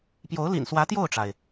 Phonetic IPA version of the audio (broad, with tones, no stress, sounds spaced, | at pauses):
p j o˧˥ ʊ̯ l ḭ˨˩ n s w ä˧˥ t̪ j o˥˩ ʊ̯ ʈ͡ʂ a˩ ɪ̯